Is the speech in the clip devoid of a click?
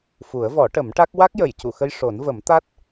yes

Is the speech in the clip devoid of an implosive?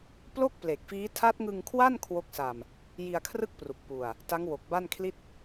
yes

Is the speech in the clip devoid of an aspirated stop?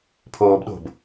no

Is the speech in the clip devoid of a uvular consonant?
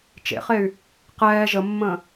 no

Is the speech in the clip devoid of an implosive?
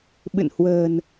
no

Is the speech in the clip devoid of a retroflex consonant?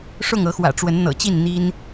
no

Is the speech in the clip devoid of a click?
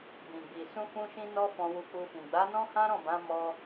yes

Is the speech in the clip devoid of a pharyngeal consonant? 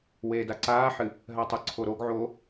no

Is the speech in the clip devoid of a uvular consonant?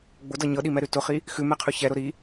no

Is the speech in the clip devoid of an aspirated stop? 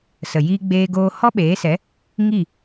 yes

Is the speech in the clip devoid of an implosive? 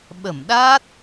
no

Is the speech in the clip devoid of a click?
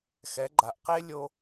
no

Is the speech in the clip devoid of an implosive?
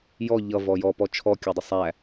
yes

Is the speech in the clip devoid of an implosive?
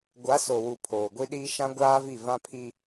no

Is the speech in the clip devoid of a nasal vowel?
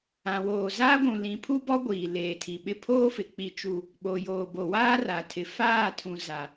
no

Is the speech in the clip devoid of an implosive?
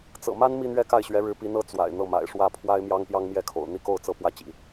yes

